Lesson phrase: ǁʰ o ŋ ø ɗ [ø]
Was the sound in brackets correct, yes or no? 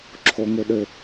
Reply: yes